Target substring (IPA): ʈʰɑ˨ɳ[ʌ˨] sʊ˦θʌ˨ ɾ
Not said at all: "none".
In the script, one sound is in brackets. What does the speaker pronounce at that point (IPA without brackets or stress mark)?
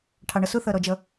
ʌ˨